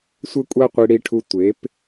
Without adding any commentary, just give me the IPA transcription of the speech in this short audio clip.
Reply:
sʷɘ˦kʷʼa˦qʷi˧ ɽi˧ʈʰu˧tʷe˨˦p

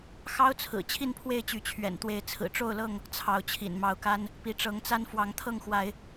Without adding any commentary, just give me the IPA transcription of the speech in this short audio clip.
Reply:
xɑ˦ʊ̯t͡sʰɹ̩˨˩ t͡ɕʰi˥˨npʰwe˥˨ɪ̯t͡ɕy˨˦ t͡ɕʰɥɛ̰˨˩nt̪we˨˦ɪ̯ t͡sʰɹ̩˨˩ʈ͡ʂo˥˨ʊ̯lɤ˥˨ŋ | t͡sʰɑ˨˦ʊ̯t͡ɕʰḭ˨˩nmɑ˨˦ʊ̯ka˦n | pi˨˦ʈ͡ʂɤ˨˦ŋt͡sa˦n fwɑ˨˦ŋt̪ʰɤ˥˨ŋxwa˨˦ɪ̯

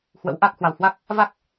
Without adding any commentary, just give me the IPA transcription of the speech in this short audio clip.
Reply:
hwə̰˧˥wʔa˦˥k̚ hwa˨˩whwa˦˥k̚ | va˦˥k̚

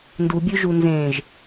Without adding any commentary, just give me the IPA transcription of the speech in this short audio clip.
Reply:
ndubʲʉʒu nzẽʒ

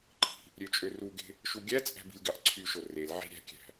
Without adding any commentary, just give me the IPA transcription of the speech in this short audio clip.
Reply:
ǃʰi̤ | ɾʲøt͡ʃʼøruɡe̤ | ʃuɡʲæt͡sʼæ̤b i̤lʲɡɑʔǀʰyʃo rel ʕi̤ɾʲæ̤kʲæ̤

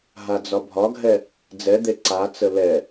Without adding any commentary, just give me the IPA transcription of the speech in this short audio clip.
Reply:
ɦad͡zɒbʱɒɡʱɛ | d͡zɛd̪e ǀat͡sə lɛ

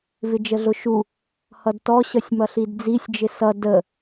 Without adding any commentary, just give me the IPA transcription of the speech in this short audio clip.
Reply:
vɪd͡ʒəɮʊʃu | hʌdtɔ ɕʌsʲmʌɬidd͡zisʲ d͡ʒɪsʌ də

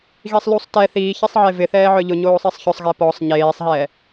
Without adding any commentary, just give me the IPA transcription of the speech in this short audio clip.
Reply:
ɣisˤlusˤ tɛ θiːçisˤʕe vɪθɛːʕœ ʎʊɲoːsˤisˤ çʊsˤɣɛ pɔsˤ ɲeːsˤɦɛː

